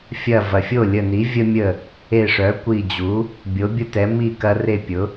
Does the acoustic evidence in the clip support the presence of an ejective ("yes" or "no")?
no